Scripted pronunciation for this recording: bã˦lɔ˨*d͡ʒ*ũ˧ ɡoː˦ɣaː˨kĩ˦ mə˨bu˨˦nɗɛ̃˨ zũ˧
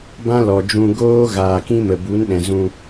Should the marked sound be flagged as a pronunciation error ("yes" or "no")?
no